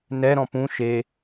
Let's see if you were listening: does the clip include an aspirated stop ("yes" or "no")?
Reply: no